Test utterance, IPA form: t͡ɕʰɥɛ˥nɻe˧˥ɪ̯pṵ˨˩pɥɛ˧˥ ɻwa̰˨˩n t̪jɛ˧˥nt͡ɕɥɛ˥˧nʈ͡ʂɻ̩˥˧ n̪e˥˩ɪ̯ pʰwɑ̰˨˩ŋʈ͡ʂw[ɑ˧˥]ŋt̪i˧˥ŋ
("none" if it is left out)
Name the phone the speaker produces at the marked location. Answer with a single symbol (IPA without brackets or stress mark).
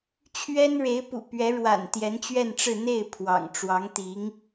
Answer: ɑ˧˥